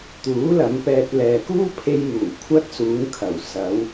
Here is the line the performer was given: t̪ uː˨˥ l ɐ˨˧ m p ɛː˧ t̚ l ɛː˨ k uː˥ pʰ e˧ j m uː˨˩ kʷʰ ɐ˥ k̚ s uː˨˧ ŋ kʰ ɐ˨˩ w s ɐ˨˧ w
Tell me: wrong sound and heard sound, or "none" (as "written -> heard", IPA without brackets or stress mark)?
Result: k̚ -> t̚